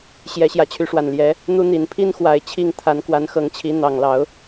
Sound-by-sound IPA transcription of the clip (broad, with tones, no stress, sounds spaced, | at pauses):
ɕ j ɛ˨˦ ɕ j ä˨˦ t͡ɕʰ y˨˦ ʂ w a˨˩ n l j ɛ˨˦ | n̪ u˦ n̪ i˨˦ n pʰ i˦ n x w a˨˩ ɪ̯ t͡ɕʰ i˥˨ ŋ t̪ʰ a˨˦ n k w a˨˦ n x ɤ˨˦ ŋ t͡ɕʰ i˨˦ n̪ ɑ˨˩ ŋ l ɑ˨˦ ʊ̯